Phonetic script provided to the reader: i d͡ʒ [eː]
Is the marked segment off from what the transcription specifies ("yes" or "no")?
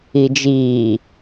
yes